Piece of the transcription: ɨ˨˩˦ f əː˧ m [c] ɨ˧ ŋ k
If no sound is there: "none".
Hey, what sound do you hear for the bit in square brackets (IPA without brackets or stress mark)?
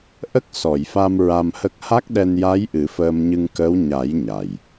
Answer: ɲ